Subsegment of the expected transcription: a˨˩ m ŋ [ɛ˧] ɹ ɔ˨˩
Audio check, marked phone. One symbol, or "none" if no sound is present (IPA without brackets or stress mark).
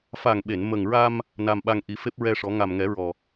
ɛ˨˩˦